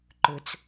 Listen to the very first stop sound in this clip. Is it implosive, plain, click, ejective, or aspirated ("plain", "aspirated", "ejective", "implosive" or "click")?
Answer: click